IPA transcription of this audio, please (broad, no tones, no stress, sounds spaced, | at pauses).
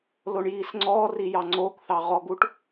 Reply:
l o ɳ j iː s ŋ͡ǀ ɔː r i j ɑ ŋ͡ǀ oː k θ ɑ ʁ ɔ ɡ u ʈ